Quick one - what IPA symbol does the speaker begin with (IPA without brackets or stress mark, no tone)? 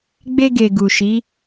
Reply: ɡ͡b